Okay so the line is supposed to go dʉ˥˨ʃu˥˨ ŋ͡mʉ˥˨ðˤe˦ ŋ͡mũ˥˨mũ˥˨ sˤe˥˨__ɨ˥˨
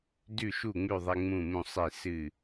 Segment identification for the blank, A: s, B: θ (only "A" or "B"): A